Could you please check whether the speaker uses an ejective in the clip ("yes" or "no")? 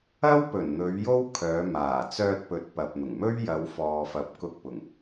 no